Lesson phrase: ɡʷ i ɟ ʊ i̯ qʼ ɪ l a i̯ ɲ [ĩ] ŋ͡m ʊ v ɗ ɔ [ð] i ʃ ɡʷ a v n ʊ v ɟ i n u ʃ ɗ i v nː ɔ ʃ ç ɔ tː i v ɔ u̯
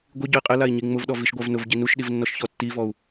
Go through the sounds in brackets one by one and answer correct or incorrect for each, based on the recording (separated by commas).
incorrect, incorrect